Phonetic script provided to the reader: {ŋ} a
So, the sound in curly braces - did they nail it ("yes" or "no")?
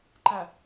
no